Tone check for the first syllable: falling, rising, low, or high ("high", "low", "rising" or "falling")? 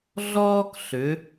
high